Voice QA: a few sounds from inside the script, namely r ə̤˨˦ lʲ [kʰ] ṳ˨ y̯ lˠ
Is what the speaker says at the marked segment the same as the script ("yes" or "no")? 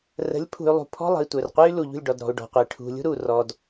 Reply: no